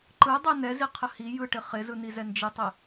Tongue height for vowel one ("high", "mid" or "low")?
high